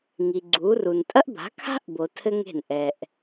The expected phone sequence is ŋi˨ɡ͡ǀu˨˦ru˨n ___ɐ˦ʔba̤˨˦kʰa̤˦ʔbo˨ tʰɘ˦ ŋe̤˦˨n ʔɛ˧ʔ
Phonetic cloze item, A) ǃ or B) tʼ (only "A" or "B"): B